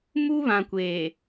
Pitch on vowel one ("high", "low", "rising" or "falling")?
high